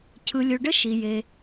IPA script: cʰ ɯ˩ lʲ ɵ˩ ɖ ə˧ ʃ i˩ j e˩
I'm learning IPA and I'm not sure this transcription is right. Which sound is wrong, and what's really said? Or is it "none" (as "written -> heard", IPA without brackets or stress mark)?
none